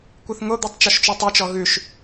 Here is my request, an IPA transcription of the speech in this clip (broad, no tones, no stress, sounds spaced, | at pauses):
kʷ ɨ θ ŋ o d̪ u tˤ t͡ʃ ɔ ʃ t͡ʃ u tˤ ɨ t͡ʃ ɔ ɣ ʉ ʃ